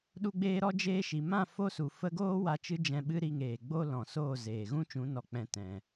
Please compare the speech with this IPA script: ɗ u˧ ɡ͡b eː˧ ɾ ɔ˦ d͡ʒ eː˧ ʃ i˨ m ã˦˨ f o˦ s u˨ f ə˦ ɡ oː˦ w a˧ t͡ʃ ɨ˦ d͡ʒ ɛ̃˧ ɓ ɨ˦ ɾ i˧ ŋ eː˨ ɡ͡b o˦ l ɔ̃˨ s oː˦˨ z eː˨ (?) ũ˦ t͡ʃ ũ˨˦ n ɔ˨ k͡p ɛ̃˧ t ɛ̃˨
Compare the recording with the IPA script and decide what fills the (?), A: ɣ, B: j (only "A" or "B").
A